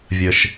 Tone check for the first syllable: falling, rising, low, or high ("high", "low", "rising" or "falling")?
low